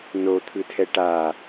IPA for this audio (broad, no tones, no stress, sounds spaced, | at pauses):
n o t̪ʰ ɯ tʰ ɛ ʈ a